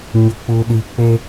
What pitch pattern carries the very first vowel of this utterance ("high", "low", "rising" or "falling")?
low